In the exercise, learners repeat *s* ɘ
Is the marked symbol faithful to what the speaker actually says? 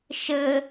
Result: no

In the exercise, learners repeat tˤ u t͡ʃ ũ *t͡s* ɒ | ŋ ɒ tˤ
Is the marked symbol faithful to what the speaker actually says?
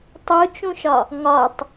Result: no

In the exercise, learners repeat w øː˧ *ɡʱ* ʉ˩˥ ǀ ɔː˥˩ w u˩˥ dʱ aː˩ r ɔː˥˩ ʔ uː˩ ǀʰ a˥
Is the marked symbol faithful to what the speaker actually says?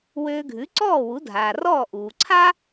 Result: yes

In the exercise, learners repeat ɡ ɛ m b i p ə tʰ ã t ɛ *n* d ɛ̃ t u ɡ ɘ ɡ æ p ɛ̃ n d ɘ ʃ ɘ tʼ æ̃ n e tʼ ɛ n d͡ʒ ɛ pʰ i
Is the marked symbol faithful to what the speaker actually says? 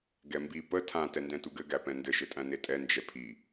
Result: yes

